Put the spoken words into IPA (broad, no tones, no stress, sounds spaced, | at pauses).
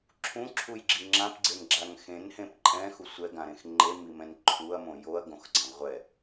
ǁʰ ũ ǁʰ u j ɡ͡ǁ i ŋ͡ǁ ã p ɡ͡ǀ e n ɡ͡ǁ a ŋ x ẽ n h ẽ p ǃʼ ɛ̃ x u sʷ ɛ ɡ ã ɾ ẽ x ŋ͡ǃ e m i m ɛ̃ n ǃʰ u ɐ̯ m õ j o ɐ̯ ɡ õ x ɡ͡ǀ ã ʁʷ ɛ